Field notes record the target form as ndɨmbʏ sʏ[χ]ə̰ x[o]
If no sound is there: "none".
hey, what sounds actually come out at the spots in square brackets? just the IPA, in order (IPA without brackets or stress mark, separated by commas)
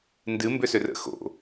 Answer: r, o̰